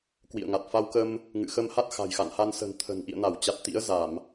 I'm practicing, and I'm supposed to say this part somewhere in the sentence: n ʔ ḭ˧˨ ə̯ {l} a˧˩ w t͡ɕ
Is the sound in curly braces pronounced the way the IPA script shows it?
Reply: no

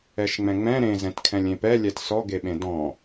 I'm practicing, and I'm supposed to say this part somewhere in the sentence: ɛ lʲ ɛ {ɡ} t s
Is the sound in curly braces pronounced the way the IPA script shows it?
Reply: no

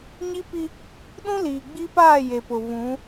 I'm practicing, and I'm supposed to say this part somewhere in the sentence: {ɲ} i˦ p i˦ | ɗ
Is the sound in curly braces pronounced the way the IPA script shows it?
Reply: yes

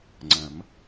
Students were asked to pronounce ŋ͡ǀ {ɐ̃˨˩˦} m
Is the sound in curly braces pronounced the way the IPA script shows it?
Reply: yes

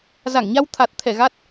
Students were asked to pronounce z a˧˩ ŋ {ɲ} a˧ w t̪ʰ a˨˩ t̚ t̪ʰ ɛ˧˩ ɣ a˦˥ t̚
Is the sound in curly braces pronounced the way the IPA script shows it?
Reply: yes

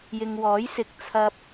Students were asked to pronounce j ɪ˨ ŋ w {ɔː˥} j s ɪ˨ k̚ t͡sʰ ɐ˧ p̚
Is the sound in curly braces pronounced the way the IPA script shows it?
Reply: no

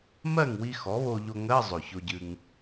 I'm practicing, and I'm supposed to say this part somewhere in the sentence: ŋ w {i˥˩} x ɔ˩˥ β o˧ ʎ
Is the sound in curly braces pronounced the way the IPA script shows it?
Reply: no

